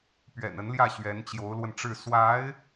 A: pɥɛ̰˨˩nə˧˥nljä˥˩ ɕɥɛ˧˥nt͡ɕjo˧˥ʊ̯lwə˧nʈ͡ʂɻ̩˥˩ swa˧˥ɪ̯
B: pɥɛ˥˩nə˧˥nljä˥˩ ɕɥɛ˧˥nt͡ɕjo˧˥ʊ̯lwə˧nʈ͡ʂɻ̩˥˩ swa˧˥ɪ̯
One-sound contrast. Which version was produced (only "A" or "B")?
A